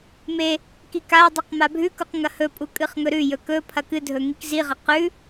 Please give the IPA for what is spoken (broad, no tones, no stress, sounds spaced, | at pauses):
m e | k i k a dˤ ɨ q m a bʱ ʉ k u q ŋ ɐ h ɵ pʼ u kʼ ɨ χ ŋ ɵ ɾ ʉ j ɵ k ɵ pʰ ɐ k ɨ dʱ ɵ ŋ i k z i ʁ ɐ q ʉ